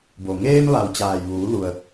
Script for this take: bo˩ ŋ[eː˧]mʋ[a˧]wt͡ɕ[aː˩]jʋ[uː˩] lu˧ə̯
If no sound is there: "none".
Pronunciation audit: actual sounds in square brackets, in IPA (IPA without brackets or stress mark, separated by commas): eː˧, a˩, aː˩, uː˩˧